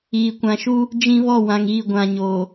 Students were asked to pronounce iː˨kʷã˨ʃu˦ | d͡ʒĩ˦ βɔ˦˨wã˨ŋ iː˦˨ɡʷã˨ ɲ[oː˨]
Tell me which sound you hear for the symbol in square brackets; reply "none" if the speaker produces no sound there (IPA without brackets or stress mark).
oː˨